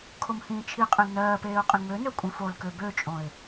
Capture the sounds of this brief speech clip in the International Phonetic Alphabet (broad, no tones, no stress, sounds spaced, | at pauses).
kʰ o m h ĩː t͡ʃʰ i qʼ ẽ l n ɜː p eː ʊ̯ qʼ ĩ ŋ͡m ø n ø kʷʼ ĩ f o l k ø b ø t͡ʃʼ õ ɪ̯